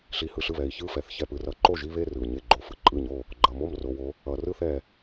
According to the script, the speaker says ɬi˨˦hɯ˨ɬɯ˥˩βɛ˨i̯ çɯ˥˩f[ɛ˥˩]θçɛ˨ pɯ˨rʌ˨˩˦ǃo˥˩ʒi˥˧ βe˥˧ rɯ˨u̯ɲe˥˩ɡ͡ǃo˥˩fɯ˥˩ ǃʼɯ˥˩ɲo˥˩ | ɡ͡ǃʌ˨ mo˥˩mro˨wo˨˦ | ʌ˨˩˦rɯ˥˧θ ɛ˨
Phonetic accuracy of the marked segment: incorrect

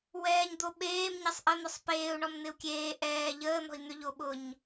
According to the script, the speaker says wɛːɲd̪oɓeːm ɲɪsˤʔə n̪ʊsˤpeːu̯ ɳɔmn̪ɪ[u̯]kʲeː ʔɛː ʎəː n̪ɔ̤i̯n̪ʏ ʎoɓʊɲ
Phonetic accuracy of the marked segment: correct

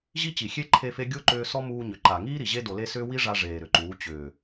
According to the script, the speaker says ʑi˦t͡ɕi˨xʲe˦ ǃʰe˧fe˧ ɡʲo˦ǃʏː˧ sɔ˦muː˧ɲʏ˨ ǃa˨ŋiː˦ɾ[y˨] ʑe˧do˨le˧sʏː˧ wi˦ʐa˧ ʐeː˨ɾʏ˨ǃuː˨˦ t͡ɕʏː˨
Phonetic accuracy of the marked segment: incorrect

